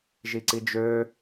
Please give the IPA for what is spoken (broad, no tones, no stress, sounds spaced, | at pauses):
ʒ i ǀ i d͡ʒ ø